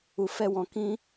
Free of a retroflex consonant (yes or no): yes